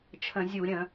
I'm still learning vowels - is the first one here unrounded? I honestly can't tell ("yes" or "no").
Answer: yes